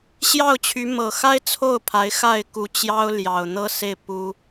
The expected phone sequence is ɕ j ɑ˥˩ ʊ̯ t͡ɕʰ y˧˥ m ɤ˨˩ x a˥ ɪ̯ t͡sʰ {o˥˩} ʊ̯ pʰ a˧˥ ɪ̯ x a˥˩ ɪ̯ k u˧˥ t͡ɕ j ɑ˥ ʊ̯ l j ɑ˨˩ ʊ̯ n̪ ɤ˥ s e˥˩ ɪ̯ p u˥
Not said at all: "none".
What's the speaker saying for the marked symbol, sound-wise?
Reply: o˥˩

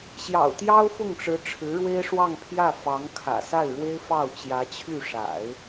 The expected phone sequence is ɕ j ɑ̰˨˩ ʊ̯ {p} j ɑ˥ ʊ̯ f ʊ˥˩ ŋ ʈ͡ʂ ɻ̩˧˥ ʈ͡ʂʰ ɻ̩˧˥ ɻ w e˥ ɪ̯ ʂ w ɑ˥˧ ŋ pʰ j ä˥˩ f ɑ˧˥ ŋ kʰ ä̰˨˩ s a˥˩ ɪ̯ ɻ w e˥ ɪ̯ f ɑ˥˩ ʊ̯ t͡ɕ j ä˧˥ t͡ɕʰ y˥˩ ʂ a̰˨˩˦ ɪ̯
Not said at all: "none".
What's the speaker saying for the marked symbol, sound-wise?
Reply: t̪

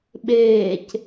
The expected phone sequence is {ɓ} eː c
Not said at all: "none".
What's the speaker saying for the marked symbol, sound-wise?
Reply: ɓ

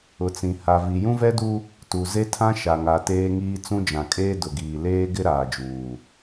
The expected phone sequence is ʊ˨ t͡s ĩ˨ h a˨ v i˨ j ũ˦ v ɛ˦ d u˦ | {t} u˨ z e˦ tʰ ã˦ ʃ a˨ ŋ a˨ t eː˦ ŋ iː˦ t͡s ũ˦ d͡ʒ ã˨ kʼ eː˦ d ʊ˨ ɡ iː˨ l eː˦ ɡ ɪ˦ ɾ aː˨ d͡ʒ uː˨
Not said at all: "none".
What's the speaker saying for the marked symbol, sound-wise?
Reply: t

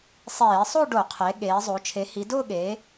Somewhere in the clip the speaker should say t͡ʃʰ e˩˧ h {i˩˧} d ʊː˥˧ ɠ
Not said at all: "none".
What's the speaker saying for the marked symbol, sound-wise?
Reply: i˩˧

